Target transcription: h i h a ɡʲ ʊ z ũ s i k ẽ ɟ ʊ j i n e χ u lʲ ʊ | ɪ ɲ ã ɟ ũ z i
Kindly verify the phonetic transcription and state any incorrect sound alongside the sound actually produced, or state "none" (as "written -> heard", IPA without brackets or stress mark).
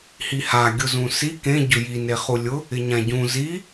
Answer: none